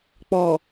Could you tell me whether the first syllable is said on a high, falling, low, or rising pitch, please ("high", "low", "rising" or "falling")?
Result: low